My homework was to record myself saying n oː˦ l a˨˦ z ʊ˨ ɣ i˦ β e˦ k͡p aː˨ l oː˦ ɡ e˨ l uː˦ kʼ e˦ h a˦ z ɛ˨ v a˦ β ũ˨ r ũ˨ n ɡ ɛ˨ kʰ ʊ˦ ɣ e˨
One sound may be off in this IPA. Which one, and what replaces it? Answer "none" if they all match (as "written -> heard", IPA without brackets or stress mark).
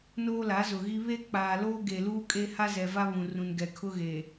none